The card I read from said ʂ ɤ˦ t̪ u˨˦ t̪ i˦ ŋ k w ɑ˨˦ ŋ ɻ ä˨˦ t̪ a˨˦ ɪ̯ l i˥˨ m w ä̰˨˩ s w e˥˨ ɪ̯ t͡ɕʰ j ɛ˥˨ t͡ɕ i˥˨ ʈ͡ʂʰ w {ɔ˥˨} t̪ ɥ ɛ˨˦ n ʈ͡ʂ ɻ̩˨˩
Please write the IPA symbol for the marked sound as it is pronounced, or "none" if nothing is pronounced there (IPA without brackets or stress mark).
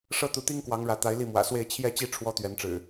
ɔ˦